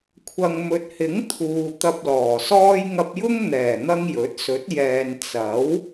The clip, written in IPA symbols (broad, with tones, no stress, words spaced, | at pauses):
kʷʰɐ˨ŋmɵ˨t̚hɪ˨˥ŋ t̪ʰuː˨ t̪ɐ˧p̚lɔː˨˩sɔː˥j ŋɐ˧p̚jʊ˥ŋn̪ɛː˨˩ n̪ɐ˥ŋjɵ˨˥t̚ sɵ˨˥t̚jɛː˨n t͡sɐ˨˥w